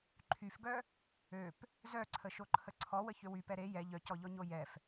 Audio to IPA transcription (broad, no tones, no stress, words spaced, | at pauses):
ǃʰyfɡœ | øp | zœǀʰəʃoǃʰə ǀʰɔwəçø wypɛ ɾe jɛ ʎœcɔʎɔɲo jɛf